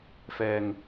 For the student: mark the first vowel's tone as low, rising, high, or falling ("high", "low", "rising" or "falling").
low